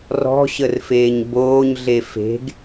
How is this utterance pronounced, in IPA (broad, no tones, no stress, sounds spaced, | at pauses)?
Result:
r ɔ̤ ɕ ə r f eː ɲ b oː ɲ ɮ e f e̤ ɡ